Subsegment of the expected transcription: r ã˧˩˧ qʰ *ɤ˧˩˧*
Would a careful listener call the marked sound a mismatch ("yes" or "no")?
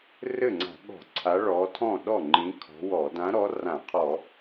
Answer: yes